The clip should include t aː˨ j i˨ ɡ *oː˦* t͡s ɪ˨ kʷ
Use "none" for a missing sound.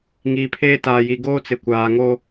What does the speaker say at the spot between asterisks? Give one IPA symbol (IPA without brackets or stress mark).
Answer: oː˦